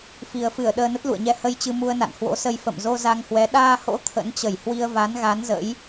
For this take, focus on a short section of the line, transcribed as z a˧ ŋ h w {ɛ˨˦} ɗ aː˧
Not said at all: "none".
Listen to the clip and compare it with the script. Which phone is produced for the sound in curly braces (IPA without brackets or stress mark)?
ɛ˨˦